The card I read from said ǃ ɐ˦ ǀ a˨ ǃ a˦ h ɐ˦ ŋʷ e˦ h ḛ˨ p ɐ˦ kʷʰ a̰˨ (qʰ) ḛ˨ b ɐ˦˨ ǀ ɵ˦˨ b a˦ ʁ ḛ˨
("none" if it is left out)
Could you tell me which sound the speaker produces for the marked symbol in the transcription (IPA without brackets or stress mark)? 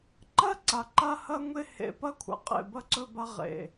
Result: qʼ